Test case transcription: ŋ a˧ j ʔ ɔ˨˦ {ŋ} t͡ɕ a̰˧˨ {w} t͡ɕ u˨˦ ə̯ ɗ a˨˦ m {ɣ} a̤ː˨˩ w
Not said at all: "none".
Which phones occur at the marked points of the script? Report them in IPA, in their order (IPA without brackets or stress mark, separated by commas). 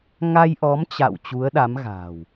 m, w, ɣ